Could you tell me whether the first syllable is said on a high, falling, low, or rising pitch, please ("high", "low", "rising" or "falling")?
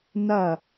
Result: falling